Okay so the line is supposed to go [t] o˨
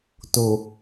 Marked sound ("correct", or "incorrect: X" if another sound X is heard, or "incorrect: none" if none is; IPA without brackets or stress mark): correct